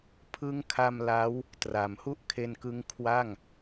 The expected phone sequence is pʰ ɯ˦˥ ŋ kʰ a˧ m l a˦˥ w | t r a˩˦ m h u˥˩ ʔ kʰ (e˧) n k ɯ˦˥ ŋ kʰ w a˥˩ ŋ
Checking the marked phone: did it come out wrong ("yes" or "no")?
no